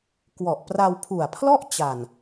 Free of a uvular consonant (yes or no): yes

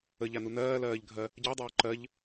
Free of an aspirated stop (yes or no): yes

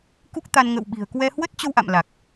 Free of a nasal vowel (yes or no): yes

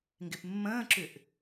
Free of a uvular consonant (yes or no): yes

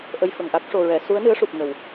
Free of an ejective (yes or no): yes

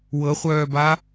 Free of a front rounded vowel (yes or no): no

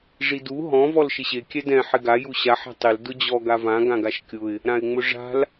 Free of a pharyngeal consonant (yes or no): no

